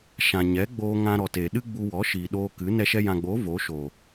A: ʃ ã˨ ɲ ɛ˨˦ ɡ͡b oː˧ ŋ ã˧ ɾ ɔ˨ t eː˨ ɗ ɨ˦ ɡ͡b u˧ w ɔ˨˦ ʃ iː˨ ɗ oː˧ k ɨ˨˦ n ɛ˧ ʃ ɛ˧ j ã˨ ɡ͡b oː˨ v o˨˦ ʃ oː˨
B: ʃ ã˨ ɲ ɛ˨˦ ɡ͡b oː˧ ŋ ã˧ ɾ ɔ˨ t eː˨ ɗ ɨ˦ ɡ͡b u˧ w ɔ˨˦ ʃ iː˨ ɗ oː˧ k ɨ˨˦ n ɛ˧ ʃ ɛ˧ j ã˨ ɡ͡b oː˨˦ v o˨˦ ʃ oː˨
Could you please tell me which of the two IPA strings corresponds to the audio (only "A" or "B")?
B